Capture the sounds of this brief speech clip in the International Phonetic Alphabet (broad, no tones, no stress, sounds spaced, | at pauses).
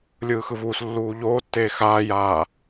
lʲ ɯː x ɯ v uː s lː uː ʎ oː tː eː x aː j aː